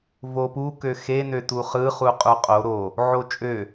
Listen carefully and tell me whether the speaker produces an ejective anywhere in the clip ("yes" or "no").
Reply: yes